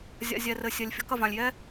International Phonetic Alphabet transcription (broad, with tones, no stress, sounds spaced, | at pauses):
zʲ a̰˨ zʲ ɛ˨ r ɘ˨ sʲ ɛ˨ lʲ fʲ ɔ̤˧ k ɐ˨ v ã˨ lʲ j ɛ˦